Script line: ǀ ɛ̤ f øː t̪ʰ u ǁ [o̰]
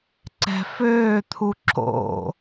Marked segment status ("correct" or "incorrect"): correct